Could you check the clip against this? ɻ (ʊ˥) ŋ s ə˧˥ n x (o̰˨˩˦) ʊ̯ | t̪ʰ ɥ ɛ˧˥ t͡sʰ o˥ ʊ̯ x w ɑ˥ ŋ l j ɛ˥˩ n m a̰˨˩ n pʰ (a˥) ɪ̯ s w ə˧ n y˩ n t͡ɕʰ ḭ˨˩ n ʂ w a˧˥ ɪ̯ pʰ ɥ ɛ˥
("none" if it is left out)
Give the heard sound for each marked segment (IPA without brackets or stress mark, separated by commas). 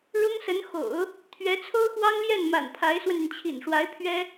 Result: ʊ˥, o̰˨˩˦, a˧˥